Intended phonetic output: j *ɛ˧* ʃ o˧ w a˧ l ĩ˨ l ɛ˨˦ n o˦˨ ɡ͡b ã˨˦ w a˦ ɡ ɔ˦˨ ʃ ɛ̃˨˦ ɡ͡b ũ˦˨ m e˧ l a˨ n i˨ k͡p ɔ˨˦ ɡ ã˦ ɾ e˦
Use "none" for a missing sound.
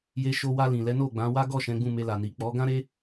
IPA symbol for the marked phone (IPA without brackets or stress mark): e˧